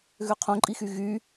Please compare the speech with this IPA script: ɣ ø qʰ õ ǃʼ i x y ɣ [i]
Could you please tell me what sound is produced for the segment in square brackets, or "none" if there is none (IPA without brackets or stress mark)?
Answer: y